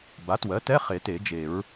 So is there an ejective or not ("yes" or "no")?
no